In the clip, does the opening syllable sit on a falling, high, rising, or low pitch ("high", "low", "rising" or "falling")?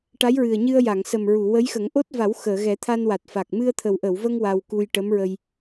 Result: rising